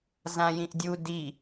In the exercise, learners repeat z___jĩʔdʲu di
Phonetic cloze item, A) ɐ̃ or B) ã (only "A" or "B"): B